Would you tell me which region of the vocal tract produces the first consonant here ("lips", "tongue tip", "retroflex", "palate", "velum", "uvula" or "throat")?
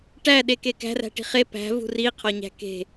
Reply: retroflex